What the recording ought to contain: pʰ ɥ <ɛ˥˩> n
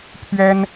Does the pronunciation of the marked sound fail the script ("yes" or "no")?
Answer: yes